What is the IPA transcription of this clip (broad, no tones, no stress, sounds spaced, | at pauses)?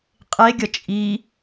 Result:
qʼ e ɡʲ ʌ t͡ʃʼ i